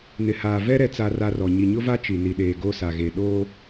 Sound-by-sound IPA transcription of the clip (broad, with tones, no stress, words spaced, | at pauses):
nɪ˨haː˨vɛ˦ ɾɛ˦t͡sa˦ra˦rɔ˨ ɲi˨ɲʊ˦va˦ t͡ʃi˨ni˨ɗeː˨ ɡo˦sa˨ɣe˨ ɗoː˦